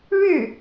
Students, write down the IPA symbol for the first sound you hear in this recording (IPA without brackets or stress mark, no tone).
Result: ɻ